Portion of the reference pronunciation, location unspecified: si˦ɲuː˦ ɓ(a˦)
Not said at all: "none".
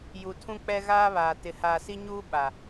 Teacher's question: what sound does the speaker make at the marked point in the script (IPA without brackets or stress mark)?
a˨